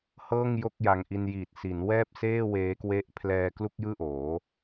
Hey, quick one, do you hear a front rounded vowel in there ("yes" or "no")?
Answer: no